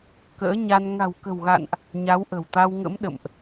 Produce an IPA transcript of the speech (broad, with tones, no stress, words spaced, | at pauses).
kə̰ː˧˥ɲa˧n ŋa̤˨˩wkə̤˨˩wɣa̰˧˨nʔ | ɲa˨˦wʔə̤˨˩wt̪a˧wŋə̰˧˥m ɗə̰˧˨mʔ